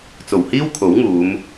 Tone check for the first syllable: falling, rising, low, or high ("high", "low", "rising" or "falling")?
low